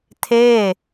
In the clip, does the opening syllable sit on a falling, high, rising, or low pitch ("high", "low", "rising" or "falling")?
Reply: falling